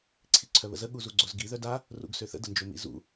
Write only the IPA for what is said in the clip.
ǀʰ i ǀʰ œ β ə̰ z ə ɠ u z u ɡ͡ǀ o z ɡ i ð œ d a | r ṵ ɡ s ø θ ə̰ d ə n d͡ʒ o m ḭ z ṵ

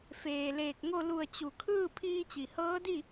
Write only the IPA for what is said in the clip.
f eː˩ l eː˧˩ k̚ ŋ o˥˨ l u˧˩ ə̯ t͡ɕ u˩ kʰ ɯː˥˨ pʰ iː˧ t͡ɕ i˩ h ɤː˧˥ d i˥˨

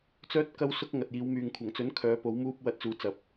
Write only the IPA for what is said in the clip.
t͡s œː˥ t̚ k ɐ˥ w s ʊ˥ k̚ ŋ ɐ˨ t̚ j iː˨˧ w m yː˨ ŋ kʷʰ ɐ˨˩ ŋ t͡s ɵ˨˥ n kʰ œː˨˧ p o˨˥ w m uː˥ p̚ w ɐ˧ t̚ t͡s uː˨˧ t͡s ɐ˨˥ p̚

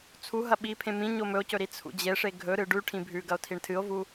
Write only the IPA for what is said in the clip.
t͡sʰ u ɦ ɐ ɓ i pʰ ẽ m ĩ ɲ o m ɵ o̯ c ɵ ɾ i t͡sʰ ṵ d͡ʑ e ʂ e ɡʱ ɵ ɾ ɨ ɖ ʉ ʈʰ ĩ bʱ ʉ ɡ ɐ o̯ tʰ i ɳ tʰ ɨ o̯ v u

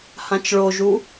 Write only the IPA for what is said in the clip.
h ã t͡ʃ ɭ o ʒ u

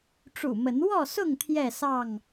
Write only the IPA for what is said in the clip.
ʈ͡ʂ ṵ˨˩ m ə˨˦ n w ɔ˥˨ s ʊ˥˨ ŋ t̪ʰ j ɛ˥˨ s ɑ˥˨ ŋ

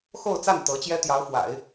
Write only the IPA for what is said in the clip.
x o˥˧ ʊ̯ t͡s a˥˩ n t̪ ɤ˧˥ t͡ɕ j ɛ˥ t̪ j ɑ˧˥ ʊ̯ f w a̰˨˩˦ ɪ̯

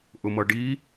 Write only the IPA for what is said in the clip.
ʔ ʊ m ʌ ɖ i

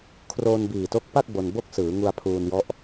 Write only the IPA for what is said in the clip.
kʰ r oː˧ n b iː˨˩ t o˦˥ k̚ p a˥˩ k̚ b o˧ n b o˥˩ k̚ s ɯː˩˦ ŋ u˧ a̯ pʰ uː˧ n j ɔ˦˥ ʔ

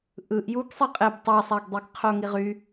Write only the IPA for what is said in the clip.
ʔ ɯ ʔ j u ɡ sˤ i qʼ e b tˤ æ sˤ æ ɡ dˤ i ɡ qʰ o ŋ i ʁ y

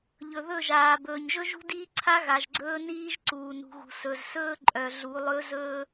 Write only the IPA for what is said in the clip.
ʎ ɵ˨ ð ɵ˦˨ ʒ aː˨ b ɵː˨ ɲ ʒ ɵ˦ ʒ ṳ˦ d iː˦ ǀʰ a˦ ɣ a˨ ʒ ɡ͡ǀ ɵː˦ n iː˦ ʒ ǀ uː˨ n ṳ˨ ɣ ṳ˨ s ɵ˨ z s ɵː˦ ǃʼ œ˨ ɮ u˨˦ lˠ ɵ˦ z ɵː˦

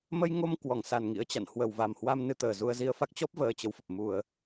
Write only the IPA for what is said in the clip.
m ə˧ j ŋ o˧ m k w ɔ˧˩ ŋ s a˨˩ n ŋ ḭ˧˥ ə̯ t͡ɕ a̰˧˨ n h w ə˨˩ w v a˨˩ m h w a˧ m n ɨ˧ t̪ əː˨˩ z u˧ ə̯ z i˧ ə̯ f a˦˥ k̚ t͡ɕ ɔ˦˥ p̚ v əː˧ t͡ɕ ə˨˦ w f ə˨˩ p̚ m u˧˩˨ ə̯

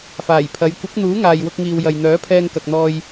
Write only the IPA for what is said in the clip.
f aː˨˩ j pʰ ɐ˨˧ j kʷ ɪ˨˥ k̚ n̪ uː˨˥ ŋ aː˨ j w ʊ˧ k̚ ŋ iː˨ w j ɐ˨ j n̪ œː˨˥ pʰ ɛː˧ ŋ k ɐ˨ k̚ n̪ ɔː˧ j

